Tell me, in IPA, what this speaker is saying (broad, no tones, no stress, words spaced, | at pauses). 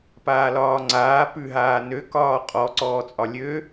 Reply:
paːlɒːŋ͡ǀaː pʉ ɦaːnø kɒːqʼɔ ǀɔːt͡sʼɒlʲø